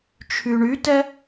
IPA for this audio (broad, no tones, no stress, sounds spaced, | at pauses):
t͡ʃʰ y ɳ y t ɛ